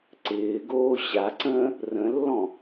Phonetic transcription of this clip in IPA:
ǀ ɪː ɡ oː ɕ a ǀ ə̃ː | r ə̃ lː ɔ̃

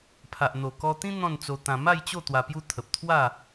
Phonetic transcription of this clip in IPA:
pʰ a˨ ʔ n̪ o˨˩ k ɔ˧ t̪ ĩ˦ n̪ ɔ̃˥˧ n t͡s o˧ t̪ ã˧ m a˥˧ j t͡ɕ o˥˧ t̪ w a˧ p j u˦ t̪ʰ ə˨ p̚ t̪ʰ w a˥˧

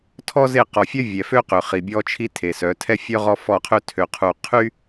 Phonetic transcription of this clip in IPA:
tʰ ɔ˦ z e˦˨ q ɔ˨ fʲ œ˦ vʲ ɛ˨ f ø˦ q ø˨ χ i˨ bʲ ɔ˦ t͡ʃʰ i˦ tʰ e˨ s œ˨˦ tʰ ɛ˦ fʲ œ˦ ʁ ɔ˦ f ɔ˦˨ qʰ ø˦ tʰ ø˨ qʰ u˨ qʰ y˦

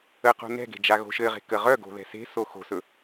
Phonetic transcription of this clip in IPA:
ə q o̤ n ɛ̤ ɡ e̤ d͡ʒ a ɣ o̤ ʃ ɘ ʁ e̤ k ə ʁ œ ɡ o̤ ð ɛ̤ s e̤ s o x o̤ s ɵ

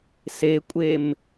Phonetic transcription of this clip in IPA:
s e kʷʼ e m

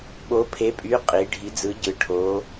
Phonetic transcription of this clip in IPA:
ɓ o˧˥ pʰ e˧˥ pʼ y˧˥ qʼ i˧˥ ɖʱ i˧˥ d͡z ɯ˧˥ ɟ ɯ˧˥ ʈʰ o˧˥

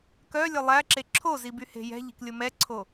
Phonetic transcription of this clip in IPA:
k œ lʲ œ lˠ æ ǁ e ǁʰ o z i b y h e̤ j ɛ̤ ʎ i̤ k lʲ o m ɛ ǀʰ o

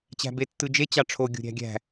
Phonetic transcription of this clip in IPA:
t͡ɕ æ̤ b e tː ɯ d͡ʒ e t͡ɕ ɑ ʈ͡ʂʰ o ɡʲ o̤ ɾʲ æ̤ ɡʲ æ̤

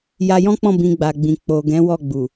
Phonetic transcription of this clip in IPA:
j a˧ j ɔ̃˦ k͡p ɔ̃˦˨ b ĩ˧ ɡ͡b a˨ ɡ͡b ĩ˨ k͡p o˨ ɡ ɛ̃˨˦ w ɔ˦˨ ɡ͡b u˨

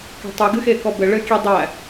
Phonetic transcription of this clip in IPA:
k æ̤ tˤ ɨ ɡ ɨ x e k ɔ b ɘ ɭ ɘ kʲ e dˤ æ

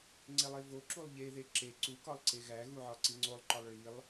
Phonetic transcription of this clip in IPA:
ŋ͡ǀ e lˠ e v o ǁ u lˠ ʎ e ð e ǁ e ǀ u k ɒ lˠ ǀ e ɣ æ ɣ u ʕ ɒ ǀ i ŋ͡ǀ o lˠ ǃ ɒ lˠ ɭ i lˠ

